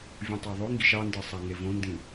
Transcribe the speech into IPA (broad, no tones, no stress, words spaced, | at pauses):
vʲũtˤæðˤøŋɡiʃ ɑndɯ sˤæŋevõndĩ